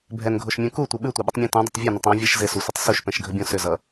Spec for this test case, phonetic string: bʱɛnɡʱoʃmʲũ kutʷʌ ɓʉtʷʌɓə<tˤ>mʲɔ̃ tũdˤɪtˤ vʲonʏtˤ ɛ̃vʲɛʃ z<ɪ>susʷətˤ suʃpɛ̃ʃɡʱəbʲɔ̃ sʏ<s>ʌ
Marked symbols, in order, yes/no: yes, yes, no

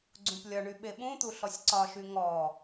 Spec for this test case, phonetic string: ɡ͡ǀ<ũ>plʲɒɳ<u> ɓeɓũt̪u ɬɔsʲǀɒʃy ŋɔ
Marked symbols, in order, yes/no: yes, no

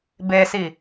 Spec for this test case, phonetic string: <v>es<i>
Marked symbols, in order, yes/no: no, yes

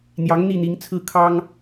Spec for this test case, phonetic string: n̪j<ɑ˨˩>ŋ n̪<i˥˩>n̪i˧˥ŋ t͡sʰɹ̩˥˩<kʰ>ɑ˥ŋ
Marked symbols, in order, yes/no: no, yes, yes

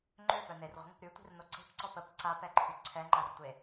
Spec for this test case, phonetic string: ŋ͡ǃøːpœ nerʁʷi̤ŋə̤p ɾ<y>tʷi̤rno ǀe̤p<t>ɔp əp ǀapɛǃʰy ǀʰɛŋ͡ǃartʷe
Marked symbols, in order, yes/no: yes, no

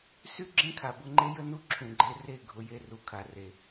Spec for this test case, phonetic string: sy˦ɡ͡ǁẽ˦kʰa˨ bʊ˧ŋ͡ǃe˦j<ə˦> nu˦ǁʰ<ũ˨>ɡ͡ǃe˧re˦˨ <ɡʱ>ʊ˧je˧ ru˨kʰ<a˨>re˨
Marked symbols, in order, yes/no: yes, yes, yes, yes

